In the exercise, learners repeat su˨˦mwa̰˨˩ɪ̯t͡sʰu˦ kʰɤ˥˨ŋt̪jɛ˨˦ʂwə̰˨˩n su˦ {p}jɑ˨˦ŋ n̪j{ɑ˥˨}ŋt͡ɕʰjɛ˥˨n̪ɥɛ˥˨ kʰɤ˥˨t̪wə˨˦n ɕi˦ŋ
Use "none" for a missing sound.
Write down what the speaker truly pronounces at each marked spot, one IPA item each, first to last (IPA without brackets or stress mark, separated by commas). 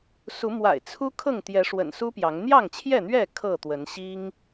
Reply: p, ɑ˥˨